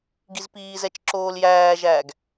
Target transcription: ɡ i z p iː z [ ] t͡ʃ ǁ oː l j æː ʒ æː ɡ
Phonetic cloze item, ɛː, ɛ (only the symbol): ɛ